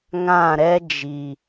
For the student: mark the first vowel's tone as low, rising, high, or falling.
falling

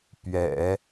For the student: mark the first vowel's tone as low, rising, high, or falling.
low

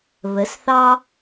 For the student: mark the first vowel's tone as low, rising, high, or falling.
rising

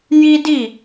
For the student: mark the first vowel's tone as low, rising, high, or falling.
high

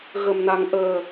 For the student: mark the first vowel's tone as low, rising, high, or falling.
low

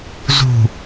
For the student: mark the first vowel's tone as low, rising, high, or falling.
low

